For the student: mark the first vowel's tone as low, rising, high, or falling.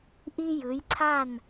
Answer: high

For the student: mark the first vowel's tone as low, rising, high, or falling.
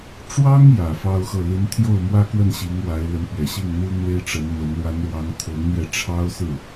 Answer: high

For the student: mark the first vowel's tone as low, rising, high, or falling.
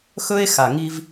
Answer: high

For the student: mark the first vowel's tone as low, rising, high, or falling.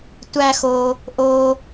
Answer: high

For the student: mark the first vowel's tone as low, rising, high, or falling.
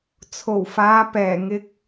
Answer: low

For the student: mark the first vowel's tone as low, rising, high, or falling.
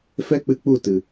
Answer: high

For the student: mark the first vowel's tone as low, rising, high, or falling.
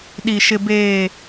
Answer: low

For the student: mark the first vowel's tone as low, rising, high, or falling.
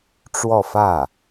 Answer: falling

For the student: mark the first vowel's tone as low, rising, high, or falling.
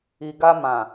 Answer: low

